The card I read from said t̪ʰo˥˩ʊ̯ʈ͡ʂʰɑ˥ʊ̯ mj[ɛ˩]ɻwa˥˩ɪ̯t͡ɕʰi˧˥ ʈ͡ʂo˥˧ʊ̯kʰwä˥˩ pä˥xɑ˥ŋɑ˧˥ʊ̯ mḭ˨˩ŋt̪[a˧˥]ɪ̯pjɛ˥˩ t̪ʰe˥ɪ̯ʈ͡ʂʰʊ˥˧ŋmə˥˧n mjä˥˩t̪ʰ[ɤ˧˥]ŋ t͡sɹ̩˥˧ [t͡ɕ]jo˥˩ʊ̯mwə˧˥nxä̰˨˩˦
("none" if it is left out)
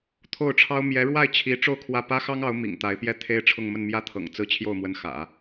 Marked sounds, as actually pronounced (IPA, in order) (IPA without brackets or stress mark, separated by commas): ɛ˧˥, a˧˥, ɤ̰˨˩, t͡ɕʰ